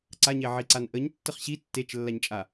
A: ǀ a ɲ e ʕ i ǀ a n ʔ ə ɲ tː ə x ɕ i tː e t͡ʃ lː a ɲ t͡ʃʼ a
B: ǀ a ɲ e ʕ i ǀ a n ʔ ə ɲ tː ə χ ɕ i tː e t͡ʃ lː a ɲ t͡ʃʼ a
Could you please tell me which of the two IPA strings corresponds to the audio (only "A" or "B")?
B